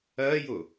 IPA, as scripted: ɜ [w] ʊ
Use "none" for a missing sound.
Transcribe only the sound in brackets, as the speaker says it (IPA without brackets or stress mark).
j